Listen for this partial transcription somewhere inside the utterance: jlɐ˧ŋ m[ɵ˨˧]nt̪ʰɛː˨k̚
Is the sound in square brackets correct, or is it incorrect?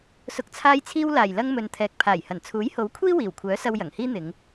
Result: incorrect